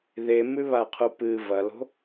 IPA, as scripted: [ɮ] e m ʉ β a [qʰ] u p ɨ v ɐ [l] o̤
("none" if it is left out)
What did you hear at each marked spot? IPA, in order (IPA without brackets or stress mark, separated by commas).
ð, qʰ, l